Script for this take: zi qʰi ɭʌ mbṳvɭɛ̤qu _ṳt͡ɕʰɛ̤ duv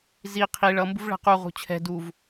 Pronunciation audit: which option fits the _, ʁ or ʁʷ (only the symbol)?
ʁ